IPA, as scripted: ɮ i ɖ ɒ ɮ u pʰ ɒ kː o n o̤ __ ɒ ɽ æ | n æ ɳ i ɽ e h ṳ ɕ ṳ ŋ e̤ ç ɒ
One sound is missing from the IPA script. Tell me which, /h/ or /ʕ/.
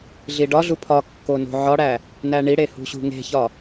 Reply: ʕ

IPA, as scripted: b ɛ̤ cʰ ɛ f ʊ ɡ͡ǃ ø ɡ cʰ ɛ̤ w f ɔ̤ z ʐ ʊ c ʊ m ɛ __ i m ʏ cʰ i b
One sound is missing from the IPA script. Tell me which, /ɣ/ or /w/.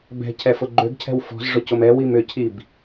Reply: w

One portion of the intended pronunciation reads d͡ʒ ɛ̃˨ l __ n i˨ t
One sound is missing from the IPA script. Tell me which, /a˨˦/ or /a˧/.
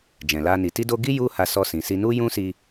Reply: a˧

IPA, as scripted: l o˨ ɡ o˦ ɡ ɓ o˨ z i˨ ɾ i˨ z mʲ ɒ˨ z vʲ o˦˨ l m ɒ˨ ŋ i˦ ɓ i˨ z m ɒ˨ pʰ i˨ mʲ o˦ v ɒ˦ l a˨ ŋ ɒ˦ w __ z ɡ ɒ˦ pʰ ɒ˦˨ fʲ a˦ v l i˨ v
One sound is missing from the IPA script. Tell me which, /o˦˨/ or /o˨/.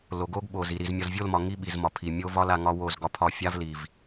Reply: o˦˨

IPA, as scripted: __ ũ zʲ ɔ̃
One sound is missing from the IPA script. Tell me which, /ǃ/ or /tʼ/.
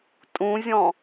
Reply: tʼ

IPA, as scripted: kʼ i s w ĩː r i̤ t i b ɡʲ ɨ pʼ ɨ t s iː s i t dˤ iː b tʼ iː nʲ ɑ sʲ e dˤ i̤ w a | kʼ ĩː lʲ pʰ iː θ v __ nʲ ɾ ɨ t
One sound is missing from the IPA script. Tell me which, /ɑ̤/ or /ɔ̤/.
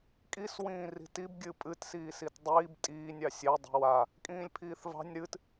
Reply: ɑ̤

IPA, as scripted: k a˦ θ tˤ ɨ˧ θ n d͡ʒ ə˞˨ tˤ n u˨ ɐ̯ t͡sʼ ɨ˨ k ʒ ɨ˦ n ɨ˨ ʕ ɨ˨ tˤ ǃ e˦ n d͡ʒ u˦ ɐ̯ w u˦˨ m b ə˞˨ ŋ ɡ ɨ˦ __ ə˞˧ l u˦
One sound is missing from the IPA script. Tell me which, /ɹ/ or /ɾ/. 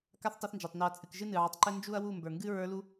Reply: ɹ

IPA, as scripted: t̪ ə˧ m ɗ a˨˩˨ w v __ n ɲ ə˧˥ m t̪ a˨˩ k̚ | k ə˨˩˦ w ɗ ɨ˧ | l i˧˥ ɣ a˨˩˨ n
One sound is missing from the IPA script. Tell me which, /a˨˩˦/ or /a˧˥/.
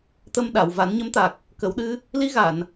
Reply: a˨˩˦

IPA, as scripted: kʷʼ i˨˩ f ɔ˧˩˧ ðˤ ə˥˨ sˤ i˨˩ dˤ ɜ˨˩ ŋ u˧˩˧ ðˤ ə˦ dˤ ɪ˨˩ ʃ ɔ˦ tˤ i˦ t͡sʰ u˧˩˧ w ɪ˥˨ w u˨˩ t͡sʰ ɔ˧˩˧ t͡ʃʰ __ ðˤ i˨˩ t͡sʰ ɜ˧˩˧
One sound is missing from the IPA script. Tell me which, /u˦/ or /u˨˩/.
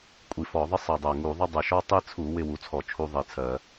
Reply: u˦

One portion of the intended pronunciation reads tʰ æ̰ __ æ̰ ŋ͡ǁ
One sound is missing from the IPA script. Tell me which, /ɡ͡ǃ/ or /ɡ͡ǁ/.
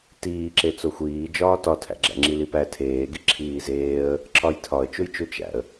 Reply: ɡ͡ǁ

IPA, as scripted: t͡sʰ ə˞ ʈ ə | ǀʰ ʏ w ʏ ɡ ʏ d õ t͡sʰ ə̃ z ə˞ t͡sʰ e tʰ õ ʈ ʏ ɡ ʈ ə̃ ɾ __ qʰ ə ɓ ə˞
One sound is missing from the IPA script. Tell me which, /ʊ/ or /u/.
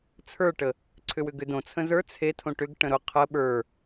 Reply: ʊ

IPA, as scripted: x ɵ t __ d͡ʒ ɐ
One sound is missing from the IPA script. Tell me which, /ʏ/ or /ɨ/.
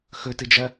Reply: ɨ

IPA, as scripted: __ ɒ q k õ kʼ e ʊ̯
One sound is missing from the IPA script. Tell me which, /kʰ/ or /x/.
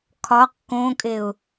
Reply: kʰ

